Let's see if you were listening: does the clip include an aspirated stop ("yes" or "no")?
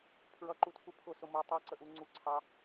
yes